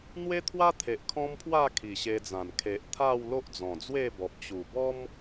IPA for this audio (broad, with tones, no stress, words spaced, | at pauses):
n̪we˦t̪ʰwa˦t̪ʰe˨ʔ kʰɔ̃˦mpʰwa˥˧ kʰi˨˩ɕe˧d͡zã˨˩n kʰe˨ʔt̪ʰa˥˧w lo˦ʔd͡zɔ̃˨˩d͡zwe˥˧bɔ˨p̚ t͡ɕu˨˩bɔ˦m